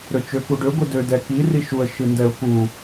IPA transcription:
ɾ ø t͡ʃ ø k u ɖ ø ɡʷ ɨ d ø d ɛ k i r i ʃ u ə̯ ʃ ɨ n d ɛ ʊ̯ k u

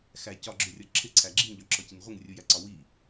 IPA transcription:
x æ c ɒ ɡ͡ǁ ʊ rʲ ɒ ǁʰ ɪ ǀʰ æ ɡ͡ǁ i ŋ ʎ ɒ ǁ ɔ c i n ʁʷ ə ŋ rʲ u j æ ǀ ɒ w i

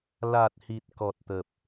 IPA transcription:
l a˨˩ t̚ h i˨˩ t̚ k ɔ˨˩ t̚ t̪ ə˨˩ p̚

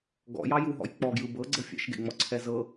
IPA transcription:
ɡ ɔ̰ j ɑ j u ɦ ɔ̰ j k͡p ɔ ɡ j ɯ b ɤ ɡ͡ǀ ɤ fʲ ɛ̰ ʃ ɡ ḛ ŋ͡m ɔ ǀʰ ɛ z ɤ

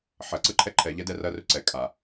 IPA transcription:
ħ ɐ ǀ ɯ ǃʰ ɛ ǃʰ ɛ ʎ ɛ d ɛ r ɐ r ʏ ǀ ɛ kʼ a

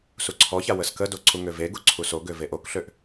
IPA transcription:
s u ǀʰ ɔ ç a w ə s k ə d o ǀ u ŋ ø v e ɡ u ǀʰ u s o ɡ ø v e ʔ o k ɬ ø ʔ

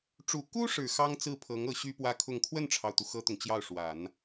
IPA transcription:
ʈ͡ʂ u˨˩ k u˥ ʂ ɻ̩˨˩ x ɑ˥ ŋ t͡s ɹ̩˥˩ pʰ ɤ˧˥ ŋ ɤ˧˥ ɕ y˥ p w ä˥ kʰ ʊ˥˧ ŋ kʰ w ə˥˩ n ʈ͡ʂʰ ɑ˩ ʊ̯ t̪ u˩ x ɤ˥ t̪ ʊ˨ ŋ t͡ɕ j ɑ˥˩ ʊ̯ ʂ w a˨˩˦ n

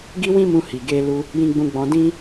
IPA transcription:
ɡ i˦ w ĩ˦ m ũ˧ h i˨ ɡ e˧ l u˧ | j ĩ˧ ɡ͡b ũ˧ ɡ͡b ɔ̃˧ d ĩ˦

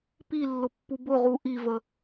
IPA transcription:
p i lː ʊ pː u b ʊ ʁ u ʔ i v ə

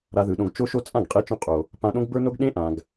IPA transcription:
ɾ a˧ ð ɯ˨ ɗ õ˧ ɡ t͡ʃ o˧ ʃ o˧ t͡sʼ ã˦˨ ɡ qʼ e˧ t͡ʃ õ˧ qʼ o˨ | p ã˧ ɗ õ˦ ɡ b ə˞˦ n o˦ ɡ ɗ ẽ˦ ʔ ã˨ ɡ

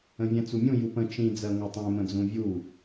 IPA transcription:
ə̃ vʲ ɛ̃ t͡s u mʲ ũ j u p ə̃ t͡ʃ ĩ d͡z ɜ ŋʷ ɛ tˤ ɛ̃ m ə̃ d͡z ũ vʲ u

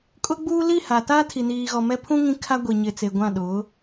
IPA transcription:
kʼ ʊ˦ ɡ͡b uː˦ l i˦˨ h a˨ t aː˦ tʰ i˨ n iː˨ ɣ ɔ˨ m ɛ˦ pʰ ũ˦ ŋ ĩ˦ kʰ a˦ ɡʷ i˨ ɲ ɪ˨ t͡s e˨ ɡʷ ã˦˨ ɗ ʊ˨˦

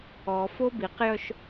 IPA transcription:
ɔ f o b i q j œ ʃ

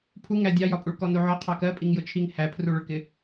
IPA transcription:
pʰ u ŋ æ dʲ ɑ j ɒ pʼ u ɭ k ɔ n u ʕ ɔ qʰ ɑ k ɜ pʼ i ŋ j ʊ t͡ʃʰ i ŋ h æ pʰ r u ɭ ʊ ɭ k ɪ

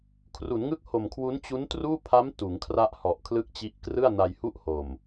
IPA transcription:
kʰ r u˩˦ n ŋ ɯ˥˩ k̚ h o˨˩ m kʰ w u˦˥ n t͡ɕ u˦˥ n t r uː˥˩ pʰ a˦˥ m t uː˩˦ ŋ kʰ r a˥˩ ʔ h ɔ˨˩ ʔ kʰ l ɯ˥˩ k̚ t͡ɕ i˦˥ ʔ k r ɯ˥˩ a̯ n a˧ j h u˥˩ ʔ h o˨˩ m

